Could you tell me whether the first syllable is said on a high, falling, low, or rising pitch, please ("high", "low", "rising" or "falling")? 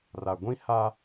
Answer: low